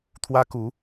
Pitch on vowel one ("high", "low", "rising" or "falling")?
high